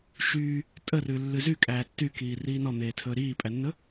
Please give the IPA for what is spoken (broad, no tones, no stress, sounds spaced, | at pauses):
ʃ yː | tʼ ə r ʉ lː ʉ z y kʼ æː tː y k iː r iː n ɔ n̪ eː tʰ ɵː ɾ iː pʼ æ nː ɵ